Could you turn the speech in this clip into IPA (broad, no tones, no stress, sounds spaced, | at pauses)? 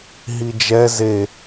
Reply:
ɦ i d͡ʒ ɛ z e